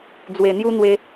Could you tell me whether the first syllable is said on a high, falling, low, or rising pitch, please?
low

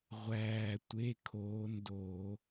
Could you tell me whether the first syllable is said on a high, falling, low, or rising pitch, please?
low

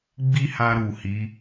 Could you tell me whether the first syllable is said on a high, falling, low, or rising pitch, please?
high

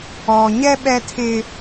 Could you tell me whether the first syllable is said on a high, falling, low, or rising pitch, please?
low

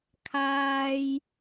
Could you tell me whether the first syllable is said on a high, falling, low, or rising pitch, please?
high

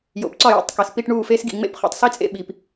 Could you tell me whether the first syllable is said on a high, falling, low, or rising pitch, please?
low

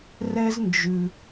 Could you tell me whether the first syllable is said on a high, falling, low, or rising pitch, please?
high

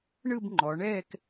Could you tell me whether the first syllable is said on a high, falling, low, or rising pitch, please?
falling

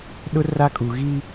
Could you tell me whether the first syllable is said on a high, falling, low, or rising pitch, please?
high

